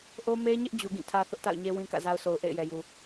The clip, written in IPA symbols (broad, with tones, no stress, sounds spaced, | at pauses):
ʔ o˦ m e˦ ɲ ɪ˦ ʔ d͡ʑ u˨ ɡ ĩ˦˨ tʰ ä˦ θ ʊ˦ ʔ t a̰˦˨ ʊ̯ ɲ e˦ w ĩ˦ k ä̰˦˨ z a˦ ʊ̯ sʰ o˨ ʊ̯ ʔ ḛ˦˨ ɪ̯ j ɛ˨ j u˨